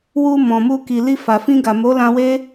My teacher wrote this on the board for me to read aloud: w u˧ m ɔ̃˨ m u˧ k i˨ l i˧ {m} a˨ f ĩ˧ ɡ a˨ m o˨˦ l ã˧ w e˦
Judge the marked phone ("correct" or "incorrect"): incorrect